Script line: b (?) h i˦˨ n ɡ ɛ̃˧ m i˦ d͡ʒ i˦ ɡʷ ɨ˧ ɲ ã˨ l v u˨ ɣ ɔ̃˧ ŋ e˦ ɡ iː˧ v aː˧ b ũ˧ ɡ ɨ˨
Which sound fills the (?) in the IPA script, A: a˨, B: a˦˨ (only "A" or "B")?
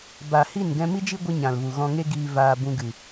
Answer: A